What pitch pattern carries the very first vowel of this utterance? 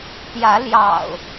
rising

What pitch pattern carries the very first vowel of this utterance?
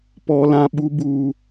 high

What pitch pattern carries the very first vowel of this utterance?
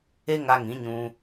high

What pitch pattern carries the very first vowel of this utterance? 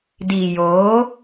low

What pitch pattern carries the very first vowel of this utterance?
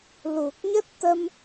low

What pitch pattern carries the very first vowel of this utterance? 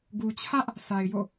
low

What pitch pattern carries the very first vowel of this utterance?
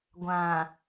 low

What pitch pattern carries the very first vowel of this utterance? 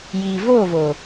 low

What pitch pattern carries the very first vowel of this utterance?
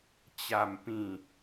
low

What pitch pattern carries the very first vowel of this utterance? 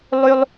high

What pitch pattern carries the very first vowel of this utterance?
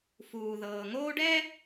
low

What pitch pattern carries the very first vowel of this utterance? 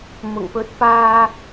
low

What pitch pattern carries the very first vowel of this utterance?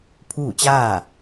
falling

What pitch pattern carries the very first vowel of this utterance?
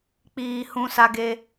low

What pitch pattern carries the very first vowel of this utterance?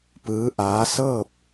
rising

